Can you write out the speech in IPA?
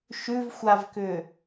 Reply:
ʃʉvxʷavkʏ

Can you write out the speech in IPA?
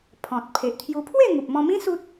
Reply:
pʰɔ̃˨t̚ pʰe˨ʔt̪ʰju˧ pʰwe˥˧ŋu˨p̚mɔ̃˧mĩ˦ su˦t̚

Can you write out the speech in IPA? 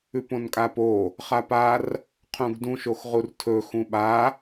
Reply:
ʉpõnkʼapo | χapar | qʰũɡdũʃ oxʁurtʰɵ xũɓa

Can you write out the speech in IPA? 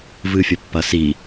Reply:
vɨfʲɐpːɐsi

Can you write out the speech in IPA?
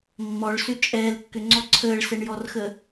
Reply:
mːɔɭsʏ t͡ʃʼɛːlkːʏŋ͡ǀɔ ǀʰəːɭsɛɳjɔrxə

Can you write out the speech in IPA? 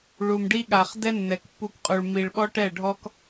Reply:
ɭu˨mɖi˦ɠa˨χ dɛ˦nːɛ˨kpːu˧k qʼu˨ɭmi˨ɭɓɔ˦ ʈɛ˦˨ɖʱɔ˦k

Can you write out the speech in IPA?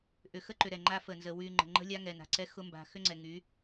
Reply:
ʔʏ˨ xə˦ǃʏ˨ ɾɛ˨ŋ͡ǃa˦ fə˨nzə˨ wy˨ ŋ͡ǃə̤˨ŋ͡ǃə̤˦lʲa˦ŋɛ˨ na̤˨ǀɛ˦xʊ˦ mba̤˨xʏ˦ŋ͡ǀɛ˨ ŋy˨˦

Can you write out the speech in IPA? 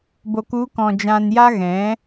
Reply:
bo˨ku˨˦kɔ̃˨ d͡ʒã˨nja˧ ɣɛ̃˨˦

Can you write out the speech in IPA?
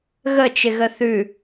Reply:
ɣət͡ʃɪɣə θʉ

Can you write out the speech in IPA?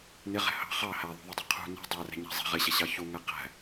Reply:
nɪʁɛ̤ hɑ̤ χɑ hæðˤṳðˤʊdˤʊ qʰṳ nɛ̤ dˤærɛ̤ɲæ̤ zˤɛ̤ ʁɪɕɛɕɑ çuŋæ qæ̤

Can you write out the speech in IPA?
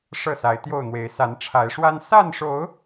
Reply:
ʂɤ˥˨sa˨˦ɪ̯t̪jo˥˨ʊ̯n̪we˨˦ɪ̯ sa˨˦nʈ͡ʂʰa˨˦ɪ̯ʂwa˦n sa˥˨nʂo˨˦ʊ̯

